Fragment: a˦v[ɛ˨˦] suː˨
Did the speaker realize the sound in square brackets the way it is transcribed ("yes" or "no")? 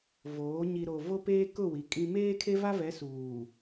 yes